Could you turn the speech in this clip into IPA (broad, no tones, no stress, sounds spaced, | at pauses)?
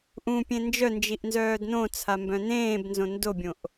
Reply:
ʔ ũ pʲ ẽ n d͡ʒ œ n d͡ʒ i ʔ n z œː d n õ t͡sʰ a m b œ̃ n ẽː b n z õ n d o bʲ õ ʔ